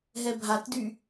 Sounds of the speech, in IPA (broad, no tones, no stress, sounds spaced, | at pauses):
ɦ ɛ bʱ a t d y